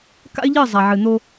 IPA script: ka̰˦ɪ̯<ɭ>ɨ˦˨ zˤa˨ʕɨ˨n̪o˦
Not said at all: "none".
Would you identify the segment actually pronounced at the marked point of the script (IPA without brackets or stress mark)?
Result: ʎ